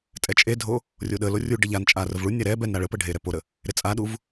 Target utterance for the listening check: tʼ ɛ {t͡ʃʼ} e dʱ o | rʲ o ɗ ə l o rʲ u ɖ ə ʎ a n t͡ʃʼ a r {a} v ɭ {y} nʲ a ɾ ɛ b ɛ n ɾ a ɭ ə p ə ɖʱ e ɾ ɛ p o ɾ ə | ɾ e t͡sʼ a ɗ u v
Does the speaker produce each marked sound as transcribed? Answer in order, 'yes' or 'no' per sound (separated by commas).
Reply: yes, no, no